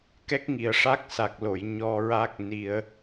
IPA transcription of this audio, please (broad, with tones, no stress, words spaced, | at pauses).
kɛ˦˥k̚ŋi˨˩ə̯ʂa˦˥k̚ sa˨˩k̚lo˨˩˨j ɲɔ˧ɹa˦˥k̚ ni˧ə̯